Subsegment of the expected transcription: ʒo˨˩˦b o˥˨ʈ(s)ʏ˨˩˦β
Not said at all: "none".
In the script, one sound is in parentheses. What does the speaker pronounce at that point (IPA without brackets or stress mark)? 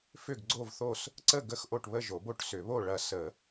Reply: s